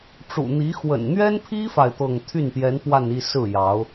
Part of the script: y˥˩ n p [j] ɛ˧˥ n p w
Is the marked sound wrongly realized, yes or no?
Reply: no